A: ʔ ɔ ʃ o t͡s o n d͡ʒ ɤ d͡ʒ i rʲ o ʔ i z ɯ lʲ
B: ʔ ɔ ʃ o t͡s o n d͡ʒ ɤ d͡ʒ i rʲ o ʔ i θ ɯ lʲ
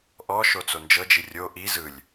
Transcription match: A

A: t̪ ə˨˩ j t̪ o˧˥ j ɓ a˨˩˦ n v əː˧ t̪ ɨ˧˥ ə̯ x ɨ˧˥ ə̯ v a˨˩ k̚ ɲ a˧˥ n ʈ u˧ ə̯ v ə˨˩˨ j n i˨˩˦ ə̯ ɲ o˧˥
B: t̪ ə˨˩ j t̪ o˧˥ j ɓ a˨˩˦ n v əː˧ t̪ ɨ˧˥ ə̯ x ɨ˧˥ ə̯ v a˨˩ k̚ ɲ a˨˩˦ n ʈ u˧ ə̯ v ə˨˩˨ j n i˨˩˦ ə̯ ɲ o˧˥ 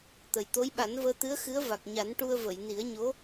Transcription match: B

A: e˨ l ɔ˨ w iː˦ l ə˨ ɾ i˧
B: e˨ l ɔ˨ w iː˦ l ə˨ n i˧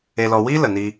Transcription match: B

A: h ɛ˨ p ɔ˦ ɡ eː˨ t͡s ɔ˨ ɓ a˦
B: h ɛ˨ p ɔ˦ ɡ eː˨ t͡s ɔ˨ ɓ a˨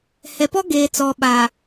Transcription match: B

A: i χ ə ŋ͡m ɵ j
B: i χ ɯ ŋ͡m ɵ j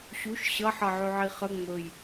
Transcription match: A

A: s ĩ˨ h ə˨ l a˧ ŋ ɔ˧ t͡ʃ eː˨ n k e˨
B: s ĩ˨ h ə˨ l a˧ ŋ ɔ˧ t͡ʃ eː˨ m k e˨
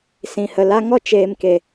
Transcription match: B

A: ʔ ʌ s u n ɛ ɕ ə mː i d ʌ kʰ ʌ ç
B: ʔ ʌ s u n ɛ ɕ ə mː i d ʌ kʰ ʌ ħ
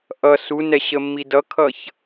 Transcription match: A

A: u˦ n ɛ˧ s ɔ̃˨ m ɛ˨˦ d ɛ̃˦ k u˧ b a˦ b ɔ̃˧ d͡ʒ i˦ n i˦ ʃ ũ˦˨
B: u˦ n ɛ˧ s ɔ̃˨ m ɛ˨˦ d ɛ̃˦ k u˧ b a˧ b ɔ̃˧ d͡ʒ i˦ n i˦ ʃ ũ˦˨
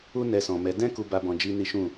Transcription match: B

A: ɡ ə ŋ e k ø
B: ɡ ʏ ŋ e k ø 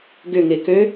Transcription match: B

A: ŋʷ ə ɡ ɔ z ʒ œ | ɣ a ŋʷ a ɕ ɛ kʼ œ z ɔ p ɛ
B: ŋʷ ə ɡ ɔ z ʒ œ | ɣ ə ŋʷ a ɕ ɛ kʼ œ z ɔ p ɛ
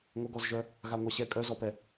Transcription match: A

